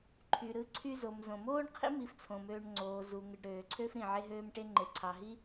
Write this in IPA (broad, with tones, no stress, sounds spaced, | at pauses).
ǃʰ y˩ ɾ ɯ˧ ǀʰ y˧ z o˩ m z õ˩ m oː˥ ɳ qʰ ḭ˥ m i˧ f t͡sʰ õ˩ m øː˧ ɳ ŋ͡ǀ oː˩ z u˩ ŋ ɯ˩ ɖ ɾ øː˩ ǀʰ ø˥ f ɾ ĩ˩ ʕ e˥ ɦ øː˥ m ʈ e˥ ŋ͡ǃ e˩ ǀʰ ɑ˩ ɦ i˥